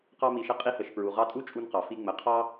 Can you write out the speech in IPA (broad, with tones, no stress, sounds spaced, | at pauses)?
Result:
q ɑ˧ m i˩ ʃ ə˧ qʼ i˧ h ə˩ ʃ p ɹ u˩ ʁ ɑ˧ tʼ u˥ t͡ʃʼ u˧ n q ɑ˩ f i˧ ŋ͡m ə˩ qʰ ɑ˥